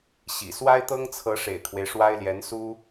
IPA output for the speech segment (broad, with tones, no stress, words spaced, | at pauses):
ɕḭ˨˩ swa˥ɪ̯t̪ɤ˥ŋt͡sʰɤ˧˥ ʂḛ˨˩ɪ̯kʰwe˦ɪ̯ʂwa˥ɪ̯ljɛ˧˥n su˥